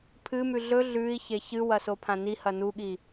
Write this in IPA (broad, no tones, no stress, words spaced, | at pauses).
pʰɨmʉ ɮɵ ɮʉi̯çe çɨwɐ sopʰãnihɐ nuɠi